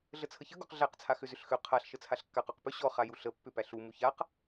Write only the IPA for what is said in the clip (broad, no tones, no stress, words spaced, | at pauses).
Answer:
ɮət͡sʰəçə ɡɔqɮæq t͡sʰaxʏzʏɬxø qʰaɬ ʃət͡sʰaɬkːaq ɔqpʏ ɕɔ χajuɬə pːʏpæɬu muçaq